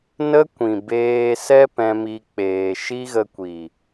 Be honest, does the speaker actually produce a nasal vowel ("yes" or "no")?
yes